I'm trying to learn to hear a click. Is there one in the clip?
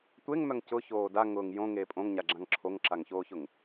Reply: yes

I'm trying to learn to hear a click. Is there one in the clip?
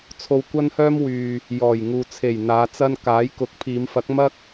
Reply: no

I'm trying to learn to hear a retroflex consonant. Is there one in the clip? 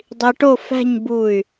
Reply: yes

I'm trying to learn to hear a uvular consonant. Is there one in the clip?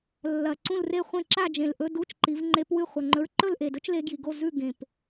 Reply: yes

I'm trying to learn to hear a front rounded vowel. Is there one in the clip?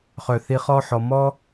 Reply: yes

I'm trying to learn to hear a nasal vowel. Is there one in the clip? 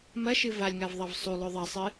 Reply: no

